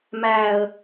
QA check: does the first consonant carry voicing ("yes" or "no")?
yes